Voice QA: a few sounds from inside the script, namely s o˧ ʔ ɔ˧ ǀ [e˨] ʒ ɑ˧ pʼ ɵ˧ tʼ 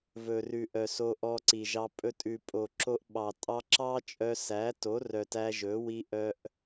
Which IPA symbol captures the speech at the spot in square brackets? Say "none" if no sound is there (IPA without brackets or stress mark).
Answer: i˨